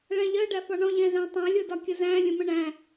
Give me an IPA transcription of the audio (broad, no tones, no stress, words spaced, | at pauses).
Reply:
ɭæ̃ʎɜ ɖæfɒɳɔ̃ ʎɛ̃zæ̃tˤæ̃lʲ ʊdɒkʲəzæ̃ lʲə̃mə̃ɳæ̃